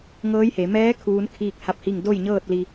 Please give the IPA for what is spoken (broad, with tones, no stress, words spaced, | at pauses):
ŋɤː˧˥jhe˩˧ mɛː˧˥ kʰuː˧˥n kʰiː˥˨k̚ha˥˨p̚hi˥˨ŋ do˥˨jɲɤː˥˨t̚li˧